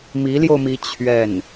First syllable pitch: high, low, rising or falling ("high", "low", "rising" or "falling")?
rising